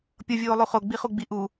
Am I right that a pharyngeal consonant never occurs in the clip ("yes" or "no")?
yes